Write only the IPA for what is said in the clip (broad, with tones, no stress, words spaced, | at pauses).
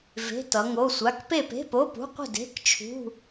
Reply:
ve̤˧˥˧tʌ˨˦ŋo˧˥˧sʷa˧˥˧k pe˥˨pe̤˧˥˧po˧˥˧pṳ˧˥˧ qʷə̤˥˨de̤˧˥˧kt͡ʃʰṳ˧˥˧